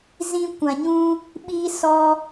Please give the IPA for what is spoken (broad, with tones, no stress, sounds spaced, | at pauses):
z ĩ˧ kʷ ã˨ ɲ ũ˧ | ɓ iː˧ s ɔ˧